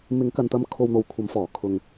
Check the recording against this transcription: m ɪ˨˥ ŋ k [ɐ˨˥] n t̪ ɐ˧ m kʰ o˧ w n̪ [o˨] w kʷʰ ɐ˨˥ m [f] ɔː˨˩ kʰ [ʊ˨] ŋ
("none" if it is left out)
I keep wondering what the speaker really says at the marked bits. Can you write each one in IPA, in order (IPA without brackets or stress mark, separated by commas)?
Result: ɐ˨, o˨, f, ʊ˨